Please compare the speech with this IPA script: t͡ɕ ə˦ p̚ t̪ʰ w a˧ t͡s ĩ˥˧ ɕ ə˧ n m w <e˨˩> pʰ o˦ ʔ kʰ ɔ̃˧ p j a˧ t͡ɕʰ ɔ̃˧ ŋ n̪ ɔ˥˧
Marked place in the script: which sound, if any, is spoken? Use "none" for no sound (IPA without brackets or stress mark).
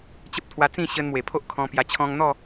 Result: e˨˩